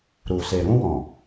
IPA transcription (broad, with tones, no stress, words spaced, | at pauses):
ɾu˨se˨ ɾũ˧wɔ̃˨